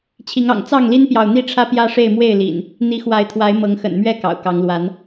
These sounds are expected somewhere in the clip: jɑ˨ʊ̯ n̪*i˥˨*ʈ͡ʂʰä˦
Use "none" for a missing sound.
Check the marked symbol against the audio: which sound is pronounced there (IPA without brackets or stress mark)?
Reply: i˥˨